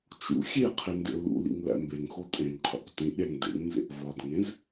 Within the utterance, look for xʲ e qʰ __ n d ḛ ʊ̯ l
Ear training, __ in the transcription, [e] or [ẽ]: e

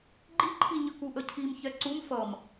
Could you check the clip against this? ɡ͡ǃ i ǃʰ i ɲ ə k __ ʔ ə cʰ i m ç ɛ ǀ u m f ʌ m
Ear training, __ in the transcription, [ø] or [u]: u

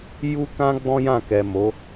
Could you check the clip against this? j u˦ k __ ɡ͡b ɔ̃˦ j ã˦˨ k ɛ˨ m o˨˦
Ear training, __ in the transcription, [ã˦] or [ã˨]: ã˦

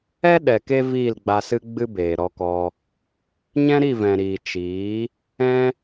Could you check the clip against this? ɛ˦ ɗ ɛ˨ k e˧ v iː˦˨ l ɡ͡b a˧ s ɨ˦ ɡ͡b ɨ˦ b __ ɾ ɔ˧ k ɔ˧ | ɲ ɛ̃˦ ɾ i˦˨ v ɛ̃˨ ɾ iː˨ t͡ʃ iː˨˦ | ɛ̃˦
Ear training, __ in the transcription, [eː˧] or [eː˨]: eː˨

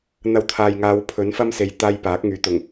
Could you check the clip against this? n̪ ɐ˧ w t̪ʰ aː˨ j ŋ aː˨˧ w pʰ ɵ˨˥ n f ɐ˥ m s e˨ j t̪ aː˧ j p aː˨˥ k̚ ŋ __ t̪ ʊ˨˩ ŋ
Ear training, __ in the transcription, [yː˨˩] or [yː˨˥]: yː˨˥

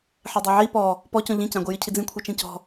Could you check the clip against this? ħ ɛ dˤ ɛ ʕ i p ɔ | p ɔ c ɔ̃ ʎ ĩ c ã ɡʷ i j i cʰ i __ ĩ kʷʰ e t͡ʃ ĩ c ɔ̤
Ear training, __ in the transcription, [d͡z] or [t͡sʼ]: d͡z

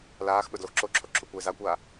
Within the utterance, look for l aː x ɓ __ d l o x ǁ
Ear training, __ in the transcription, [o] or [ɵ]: ɵ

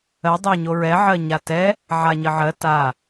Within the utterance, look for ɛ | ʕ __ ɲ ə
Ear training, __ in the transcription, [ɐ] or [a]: a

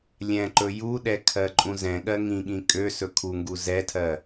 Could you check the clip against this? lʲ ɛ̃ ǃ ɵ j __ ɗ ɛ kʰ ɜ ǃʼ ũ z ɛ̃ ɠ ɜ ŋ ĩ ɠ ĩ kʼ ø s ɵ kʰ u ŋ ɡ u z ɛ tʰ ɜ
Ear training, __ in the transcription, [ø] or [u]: u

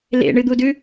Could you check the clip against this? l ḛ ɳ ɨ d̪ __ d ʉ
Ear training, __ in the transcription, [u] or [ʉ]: u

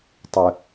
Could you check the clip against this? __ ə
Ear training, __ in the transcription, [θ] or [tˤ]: tˤ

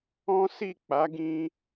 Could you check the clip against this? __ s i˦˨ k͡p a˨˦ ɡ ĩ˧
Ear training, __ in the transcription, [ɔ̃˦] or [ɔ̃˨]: ɔ̃˦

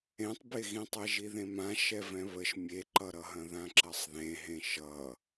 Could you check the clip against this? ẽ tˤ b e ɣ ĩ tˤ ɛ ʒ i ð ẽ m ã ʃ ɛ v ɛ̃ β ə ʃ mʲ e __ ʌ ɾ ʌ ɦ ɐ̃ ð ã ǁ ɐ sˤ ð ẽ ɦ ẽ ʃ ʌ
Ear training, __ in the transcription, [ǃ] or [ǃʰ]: ǃ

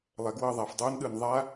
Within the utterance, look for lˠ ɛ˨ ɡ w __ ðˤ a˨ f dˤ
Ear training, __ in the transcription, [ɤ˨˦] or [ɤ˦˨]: ɤ˦˨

